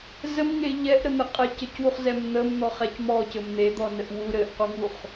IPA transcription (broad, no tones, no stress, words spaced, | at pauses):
zəmŋe ʎɛʔɾən̪ɘ qʼɛcəcwuχzɛm n̪əmn̪ɔχɛc mɔcɘm n̪ed̪ɔnəʔ wu ɾɘʔquŋuχ